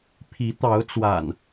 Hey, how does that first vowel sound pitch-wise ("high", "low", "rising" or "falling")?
rising